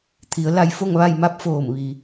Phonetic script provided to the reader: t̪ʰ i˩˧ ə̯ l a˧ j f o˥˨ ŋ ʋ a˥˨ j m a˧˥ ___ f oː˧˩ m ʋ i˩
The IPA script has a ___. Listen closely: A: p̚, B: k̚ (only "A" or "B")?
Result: A